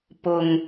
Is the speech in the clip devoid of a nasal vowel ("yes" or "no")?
yes